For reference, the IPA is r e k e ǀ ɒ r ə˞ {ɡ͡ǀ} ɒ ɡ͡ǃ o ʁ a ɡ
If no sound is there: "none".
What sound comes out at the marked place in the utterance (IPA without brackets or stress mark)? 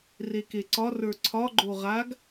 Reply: ǀʰ